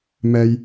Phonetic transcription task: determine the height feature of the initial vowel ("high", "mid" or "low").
mid